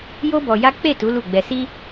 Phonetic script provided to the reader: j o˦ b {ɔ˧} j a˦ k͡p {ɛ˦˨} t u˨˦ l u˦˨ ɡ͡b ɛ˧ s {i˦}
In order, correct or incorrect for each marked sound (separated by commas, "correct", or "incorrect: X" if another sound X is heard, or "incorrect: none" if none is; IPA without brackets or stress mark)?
correct, incorrect: e˦˨, correct